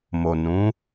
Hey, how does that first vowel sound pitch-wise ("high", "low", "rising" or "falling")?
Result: low